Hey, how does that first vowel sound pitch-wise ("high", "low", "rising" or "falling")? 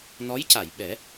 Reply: rising